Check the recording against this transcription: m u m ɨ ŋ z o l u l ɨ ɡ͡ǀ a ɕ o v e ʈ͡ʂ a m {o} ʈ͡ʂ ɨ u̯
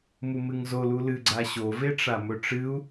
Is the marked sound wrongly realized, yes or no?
yes